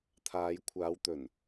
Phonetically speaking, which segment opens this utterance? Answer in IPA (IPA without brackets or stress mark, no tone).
t̪ʰ